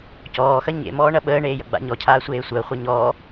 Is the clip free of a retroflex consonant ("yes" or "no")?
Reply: no